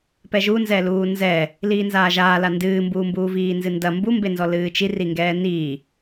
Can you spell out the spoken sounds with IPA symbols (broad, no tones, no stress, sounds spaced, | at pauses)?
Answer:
p ɛ ʒ u n z ɛ l uː n z ɛ | l iː n z aː ʒ aː l a n d ɨː m b uː m b uː v iː n z ɨ n d ɐ m b u m b e n z ɔ l ɨː t͡ʃ i r i ŋ ɡ ɛː n i